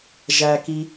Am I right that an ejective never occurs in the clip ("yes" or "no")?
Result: yes